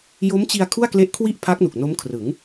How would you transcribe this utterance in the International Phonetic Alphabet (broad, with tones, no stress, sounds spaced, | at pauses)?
j o˦˥ m t͡ɕ i˧ a̯ kʰ u˥˩ a̯ k l e˦˥ ʔ kʰ w i˥˩ ʔ pʰ a˦˥ k̚ n u˨˩ k̚ n o˦˥ m kʰ r ɯ˩˦ ŋ